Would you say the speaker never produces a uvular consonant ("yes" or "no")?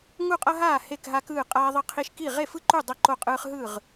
no